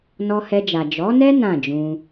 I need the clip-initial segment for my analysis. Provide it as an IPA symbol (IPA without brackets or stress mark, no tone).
n